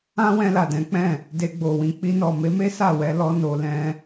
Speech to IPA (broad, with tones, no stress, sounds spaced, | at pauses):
ã˦ w ɛ̃˧ l a˨ d ɛ̃˨˦ k͡p ɛ̃˦˨ | d e˧ ɡ͡b o˨ w ĩ˧ k͡p i˧ n ɔ˨ m e˨˦ m e˦ s a˦˨ w ɛ˧ l ɔ˦ n o˧ l ɛ̃˧